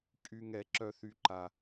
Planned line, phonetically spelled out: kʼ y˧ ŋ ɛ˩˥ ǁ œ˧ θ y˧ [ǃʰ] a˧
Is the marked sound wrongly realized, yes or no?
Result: yes